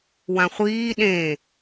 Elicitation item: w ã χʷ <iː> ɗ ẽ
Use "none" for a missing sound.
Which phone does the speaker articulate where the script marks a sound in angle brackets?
iː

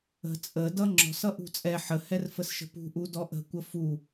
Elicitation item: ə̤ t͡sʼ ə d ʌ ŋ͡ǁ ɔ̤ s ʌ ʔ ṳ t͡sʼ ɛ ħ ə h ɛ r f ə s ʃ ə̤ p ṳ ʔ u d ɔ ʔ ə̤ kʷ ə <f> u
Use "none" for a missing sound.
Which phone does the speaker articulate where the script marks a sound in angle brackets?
f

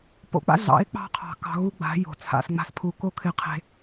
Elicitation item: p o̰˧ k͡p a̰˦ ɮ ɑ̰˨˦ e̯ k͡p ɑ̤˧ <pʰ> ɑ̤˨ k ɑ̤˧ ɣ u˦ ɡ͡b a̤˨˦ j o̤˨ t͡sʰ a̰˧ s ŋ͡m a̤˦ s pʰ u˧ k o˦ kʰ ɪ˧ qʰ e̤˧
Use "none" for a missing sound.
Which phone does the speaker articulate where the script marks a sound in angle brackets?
qʰ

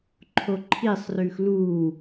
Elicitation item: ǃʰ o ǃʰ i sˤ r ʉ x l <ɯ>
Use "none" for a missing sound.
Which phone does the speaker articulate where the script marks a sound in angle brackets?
u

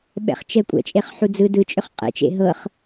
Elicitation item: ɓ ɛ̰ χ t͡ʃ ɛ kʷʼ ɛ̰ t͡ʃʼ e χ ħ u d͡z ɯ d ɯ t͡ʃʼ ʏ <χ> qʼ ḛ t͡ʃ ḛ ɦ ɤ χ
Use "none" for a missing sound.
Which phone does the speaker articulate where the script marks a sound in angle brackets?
χ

